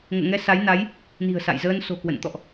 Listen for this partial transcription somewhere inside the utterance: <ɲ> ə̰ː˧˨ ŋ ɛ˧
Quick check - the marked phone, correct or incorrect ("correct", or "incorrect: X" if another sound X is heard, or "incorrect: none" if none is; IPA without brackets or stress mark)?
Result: incorrect: ŋ